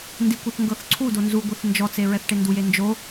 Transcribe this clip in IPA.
n d i kʷ o θ ŋ ɡ ɤ θ ǀʰ u d o n z u ɡʷ e θ n d͡ʒ ɔ t͡s e ɹ ɛ θ ʈ e n d u j e n d͡ʒ o

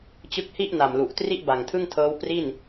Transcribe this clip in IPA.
t͡ɕ ɯ˦˥ k̚ h i˥˩ ʔ n a˨˩ m l u˨˩ ʔ t r i˥˩ ʔ b a˨˩ ŋ tʰ ɯ˥˩ ŋ tʰ ɤː˦˥ w p r i˥˩ n

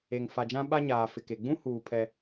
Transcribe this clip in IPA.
e˨ ŋ f a˨ d͡ʒ ã˦ ɓ a˦ ɲ aː˨ f ɪ˨ k e˨ ɡ͡b ũ˦ h uː˨ pʰ ɛ˦

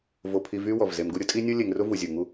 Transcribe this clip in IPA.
v o˨ pʰ i˨ v y˦ w ɔ˩ v z e˨ m ɡ u˦ ɾʲ ʊ˦ tʼ i˥ nʲ u˥ lʲ e˨ ŋ r ʊ˥ v u˩ zʲ u˩ ŋ u˦

